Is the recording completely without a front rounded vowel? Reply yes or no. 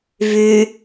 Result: no